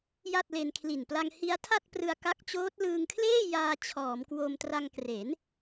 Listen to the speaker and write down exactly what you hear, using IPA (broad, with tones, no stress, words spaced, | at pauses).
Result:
ja˥˩t̚le˧nkʰli˨˩n pla˧ŋhi˦˥a̯tʰa˥˩t̚ prɯ˧a̯ka˦˥k̚t͡ɕoː˦˥t̚ lɯː˧ŋkʰleː˥˩jaː˧ t͡ɕʰɔː˩˦mkwo˧m tra˧ŋkre˩˦n